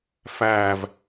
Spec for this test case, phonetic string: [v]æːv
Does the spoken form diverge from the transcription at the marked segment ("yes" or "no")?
yes